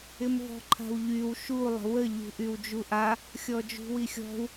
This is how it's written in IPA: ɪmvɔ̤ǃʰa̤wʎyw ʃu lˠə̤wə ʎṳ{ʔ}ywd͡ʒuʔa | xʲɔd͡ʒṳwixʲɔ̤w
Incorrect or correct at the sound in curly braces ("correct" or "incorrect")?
correct